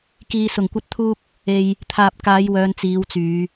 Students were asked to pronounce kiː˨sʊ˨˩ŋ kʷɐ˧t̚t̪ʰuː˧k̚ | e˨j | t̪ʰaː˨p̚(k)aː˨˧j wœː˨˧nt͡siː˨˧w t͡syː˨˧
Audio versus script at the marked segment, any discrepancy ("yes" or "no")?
no